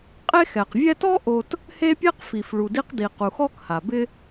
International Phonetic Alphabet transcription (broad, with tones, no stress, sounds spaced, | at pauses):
qʼ e˦ x ɛ˩ q vʲ ɛ˦ t ɔ˥ ʔ o˦ t | h e˥ pʲ e˥ q f i˩ f ɭ u˩ d i˦ q d i˩ q u˩ x ɔ˦ k h a˩ b ɪ˦